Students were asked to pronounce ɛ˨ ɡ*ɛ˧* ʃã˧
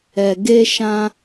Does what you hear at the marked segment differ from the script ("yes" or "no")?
yes